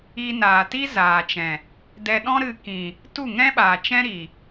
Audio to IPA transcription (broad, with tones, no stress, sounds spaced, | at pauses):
i˧ n aː˨ t i˦ z aː˨ t͡ʃ ɛ̃˨ | d ɛ˧ ɗ ɔ̃˦ ɾ ɨ˧ k ĩ˨ | t u˦˨ ŋ ɛ̃˦ ɓ aː˨ t͡ʃ ɛ̃˦ ɾ i˨